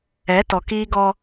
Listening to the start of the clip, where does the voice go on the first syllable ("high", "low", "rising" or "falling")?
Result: rising